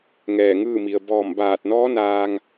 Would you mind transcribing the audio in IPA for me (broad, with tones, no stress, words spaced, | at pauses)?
ŋɛː˧˩ŋɯː˥˨mi˩ə̯ bɔː˧˩mbaː˧˩t̚nɔː˧˥ naː˧ŋ